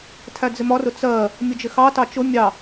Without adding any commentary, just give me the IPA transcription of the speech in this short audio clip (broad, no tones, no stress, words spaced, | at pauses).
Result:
tʰæd͡zɪmɒrʊ t͡sɜ | mʲʊd͡ʒɪxɑtɑ t͡ʃʊ mʲɑ